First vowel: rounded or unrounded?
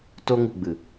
rounded